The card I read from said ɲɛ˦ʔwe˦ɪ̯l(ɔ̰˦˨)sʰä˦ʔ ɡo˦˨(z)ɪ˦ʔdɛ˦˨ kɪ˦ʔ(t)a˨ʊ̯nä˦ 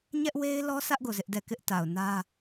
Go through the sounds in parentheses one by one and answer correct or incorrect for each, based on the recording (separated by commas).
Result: incorrect, correct, correct